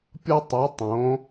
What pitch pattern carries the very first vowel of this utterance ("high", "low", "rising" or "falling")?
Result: high